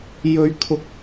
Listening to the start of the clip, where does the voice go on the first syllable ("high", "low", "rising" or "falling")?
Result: high